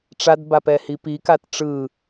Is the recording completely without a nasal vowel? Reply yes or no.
yes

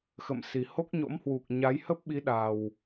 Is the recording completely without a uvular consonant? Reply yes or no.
yes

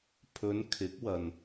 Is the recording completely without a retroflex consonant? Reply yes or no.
yes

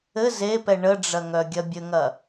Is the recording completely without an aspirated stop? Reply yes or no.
yes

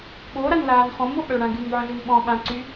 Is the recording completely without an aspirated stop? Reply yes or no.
yes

